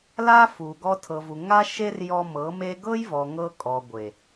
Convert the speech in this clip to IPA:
l a˦ f u˨ ɡ ɔ˧ tʰ ɤ˨ v u˨ ŋ a˦ ʃ e˦ r j ɔ˧ m ɤ˨˦ m e˦ ɡ ɤ˦ j v ɔ˨ ŋ ɤ˧ kʼ ɔ˨ ɡʷ e˨

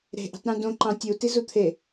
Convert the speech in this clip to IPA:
ɾ e̤ ʔ i̤ tˤ ɾ ũ d õ ǃ ɑ̃ tʲ u t i z u t̪ʰ e

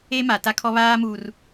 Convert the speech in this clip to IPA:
e˦ m a˨ t a˦ kʰ ɔ˦ β aː˦ m uː˨ r

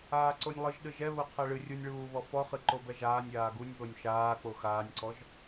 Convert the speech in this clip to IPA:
aː ǀ o nʲ lˠ ɨ ʒ ɗ ɨ ʒ ɛ β o qʰ ɛ ɭ ɨ rʲ u nʲ ɭ uː β ɔ f ɔ χ ɨ ǃ o b ɛ ʒ aː nʲ aː ɡ u nʲ β o nʲ ʃ aː k͡p o x aː nʲ ǀ ɔ ʒ

